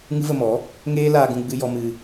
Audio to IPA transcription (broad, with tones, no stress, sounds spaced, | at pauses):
ŋ ɨ˦ v ə˧ m ɔ˨˦ | ŋ eː˦ l aː˧ ɡ ũ˧ ɡ͡b ɨ˧ j ɔ˧ m ɨ˧